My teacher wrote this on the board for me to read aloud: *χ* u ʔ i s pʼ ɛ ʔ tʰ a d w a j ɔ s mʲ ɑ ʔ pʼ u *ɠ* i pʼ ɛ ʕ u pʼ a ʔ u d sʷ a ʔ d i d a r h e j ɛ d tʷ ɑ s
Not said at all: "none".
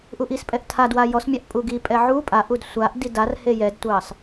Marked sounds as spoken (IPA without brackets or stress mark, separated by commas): ʔ, ɡ